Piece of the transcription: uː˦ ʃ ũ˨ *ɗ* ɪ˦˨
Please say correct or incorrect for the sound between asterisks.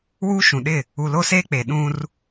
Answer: correct